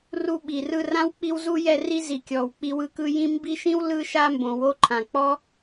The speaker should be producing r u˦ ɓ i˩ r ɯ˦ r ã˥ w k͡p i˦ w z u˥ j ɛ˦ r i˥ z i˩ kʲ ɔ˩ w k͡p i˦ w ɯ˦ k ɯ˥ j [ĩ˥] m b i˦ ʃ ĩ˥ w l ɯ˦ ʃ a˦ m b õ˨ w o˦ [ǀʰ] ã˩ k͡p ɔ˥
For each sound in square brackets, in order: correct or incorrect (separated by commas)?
incorrect, incorrect